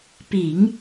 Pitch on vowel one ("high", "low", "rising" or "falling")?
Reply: low